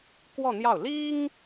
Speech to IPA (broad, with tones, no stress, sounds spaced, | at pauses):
k w ɔ˥˧ n̪ j ɑ˥˩ ʊ̯ l i˥ ŋ